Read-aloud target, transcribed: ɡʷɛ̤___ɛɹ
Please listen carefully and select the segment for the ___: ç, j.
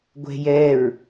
j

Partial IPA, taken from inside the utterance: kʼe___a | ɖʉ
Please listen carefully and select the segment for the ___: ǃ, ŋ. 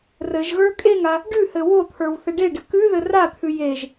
ŋ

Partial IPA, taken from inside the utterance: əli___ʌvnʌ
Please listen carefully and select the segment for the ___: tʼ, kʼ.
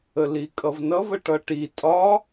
kʼ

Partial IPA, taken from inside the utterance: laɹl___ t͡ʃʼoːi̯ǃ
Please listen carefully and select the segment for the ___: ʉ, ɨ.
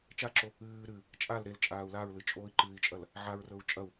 ɨ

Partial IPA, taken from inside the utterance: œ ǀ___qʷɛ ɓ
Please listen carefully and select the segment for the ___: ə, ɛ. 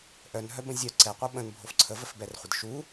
ɛ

